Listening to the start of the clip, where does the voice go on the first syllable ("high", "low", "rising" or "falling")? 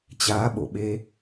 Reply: rising